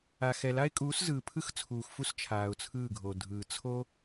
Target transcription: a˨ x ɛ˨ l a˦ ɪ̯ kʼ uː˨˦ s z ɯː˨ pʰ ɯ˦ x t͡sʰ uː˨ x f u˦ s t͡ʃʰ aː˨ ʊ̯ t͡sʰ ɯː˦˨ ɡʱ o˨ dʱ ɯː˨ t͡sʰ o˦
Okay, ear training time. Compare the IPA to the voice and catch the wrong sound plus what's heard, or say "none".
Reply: none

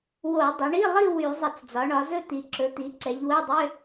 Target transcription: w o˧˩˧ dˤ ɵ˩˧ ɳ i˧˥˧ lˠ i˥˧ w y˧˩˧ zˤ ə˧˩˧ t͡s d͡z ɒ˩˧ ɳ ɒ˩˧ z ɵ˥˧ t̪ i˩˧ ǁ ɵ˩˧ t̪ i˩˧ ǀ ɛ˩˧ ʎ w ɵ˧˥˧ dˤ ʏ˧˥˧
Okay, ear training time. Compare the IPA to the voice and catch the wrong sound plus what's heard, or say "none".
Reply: none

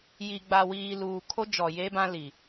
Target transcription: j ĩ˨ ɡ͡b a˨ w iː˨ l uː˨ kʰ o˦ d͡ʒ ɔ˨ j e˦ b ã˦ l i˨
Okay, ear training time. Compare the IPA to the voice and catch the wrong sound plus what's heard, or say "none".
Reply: ĩ˨ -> i˨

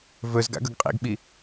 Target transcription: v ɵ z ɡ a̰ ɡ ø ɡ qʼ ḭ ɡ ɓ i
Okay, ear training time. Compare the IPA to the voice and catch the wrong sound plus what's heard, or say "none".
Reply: ø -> ɵ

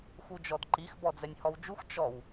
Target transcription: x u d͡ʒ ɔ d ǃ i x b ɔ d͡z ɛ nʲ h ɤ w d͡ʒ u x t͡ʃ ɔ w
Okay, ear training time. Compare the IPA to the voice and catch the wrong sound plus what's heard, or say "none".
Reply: ɤ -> ɔ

